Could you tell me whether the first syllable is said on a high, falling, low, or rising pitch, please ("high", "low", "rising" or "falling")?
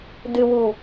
low